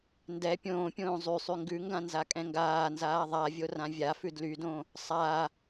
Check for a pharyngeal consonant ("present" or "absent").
absent